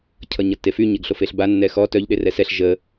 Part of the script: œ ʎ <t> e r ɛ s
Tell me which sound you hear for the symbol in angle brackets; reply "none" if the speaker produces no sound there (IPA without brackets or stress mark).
ɗ